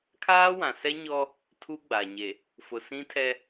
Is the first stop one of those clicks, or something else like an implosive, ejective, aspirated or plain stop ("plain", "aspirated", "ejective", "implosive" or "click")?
aspirated